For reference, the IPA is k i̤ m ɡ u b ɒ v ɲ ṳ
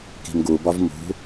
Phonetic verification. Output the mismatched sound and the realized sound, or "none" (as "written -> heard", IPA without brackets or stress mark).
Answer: ɲ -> m